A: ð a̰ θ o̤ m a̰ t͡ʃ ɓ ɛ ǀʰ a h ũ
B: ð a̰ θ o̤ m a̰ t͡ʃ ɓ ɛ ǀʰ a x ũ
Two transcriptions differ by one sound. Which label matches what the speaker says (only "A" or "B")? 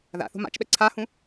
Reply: A